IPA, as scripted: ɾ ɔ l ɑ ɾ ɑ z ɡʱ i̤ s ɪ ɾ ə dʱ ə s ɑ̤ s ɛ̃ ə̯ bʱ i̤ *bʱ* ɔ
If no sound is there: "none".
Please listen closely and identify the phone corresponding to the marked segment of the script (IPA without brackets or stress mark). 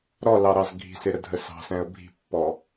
pː